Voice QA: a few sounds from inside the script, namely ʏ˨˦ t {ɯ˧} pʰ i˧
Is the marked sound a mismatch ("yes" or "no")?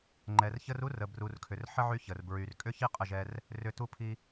yes